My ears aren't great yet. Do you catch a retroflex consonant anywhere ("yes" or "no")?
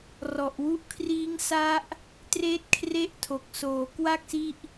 no